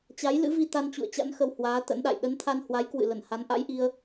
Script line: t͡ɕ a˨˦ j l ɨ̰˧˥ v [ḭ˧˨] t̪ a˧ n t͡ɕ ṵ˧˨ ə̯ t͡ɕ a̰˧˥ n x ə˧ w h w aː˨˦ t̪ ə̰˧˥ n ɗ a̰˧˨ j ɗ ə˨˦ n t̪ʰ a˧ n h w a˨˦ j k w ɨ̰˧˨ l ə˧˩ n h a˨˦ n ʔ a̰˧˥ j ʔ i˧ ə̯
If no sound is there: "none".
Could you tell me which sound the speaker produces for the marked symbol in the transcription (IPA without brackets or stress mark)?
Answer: i˧